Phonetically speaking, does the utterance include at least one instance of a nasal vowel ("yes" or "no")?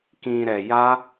yes